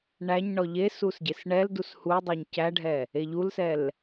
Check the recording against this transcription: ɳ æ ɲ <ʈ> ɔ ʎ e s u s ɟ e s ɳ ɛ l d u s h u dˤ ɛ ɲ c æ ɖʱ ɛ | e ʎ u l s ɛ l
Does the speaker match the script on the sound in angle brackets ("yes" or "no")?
no